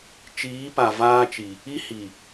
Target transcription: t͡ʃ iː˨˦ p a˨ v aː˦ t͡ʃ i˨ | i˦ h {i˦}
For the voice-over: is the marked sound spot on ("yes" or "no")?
no